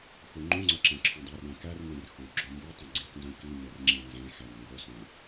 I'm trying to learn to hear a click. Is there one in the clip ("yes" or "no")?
yes